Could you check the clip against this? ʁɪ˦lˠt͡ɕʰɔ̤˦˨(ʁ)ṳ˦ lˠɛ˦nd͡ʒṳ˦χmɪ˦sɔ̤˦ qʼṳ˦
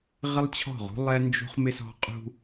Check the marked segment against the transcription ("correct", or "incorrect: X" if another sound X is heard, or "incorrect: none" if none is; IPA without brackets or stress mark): correct